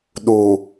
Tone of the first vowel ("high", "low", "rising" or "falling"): low